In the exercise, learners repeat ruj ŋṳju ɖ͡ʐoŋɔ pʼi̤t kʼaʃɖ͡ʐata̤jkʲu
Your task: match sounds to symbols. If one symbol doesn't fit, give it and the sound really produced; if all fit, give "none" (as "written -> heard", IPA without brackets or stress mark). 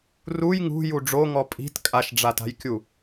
none